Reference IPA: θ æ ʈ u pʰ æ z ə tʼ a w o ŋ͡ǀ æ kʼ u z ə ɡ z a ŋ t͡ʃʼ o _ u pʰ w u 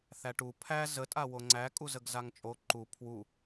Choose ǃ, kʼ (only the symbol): ǃ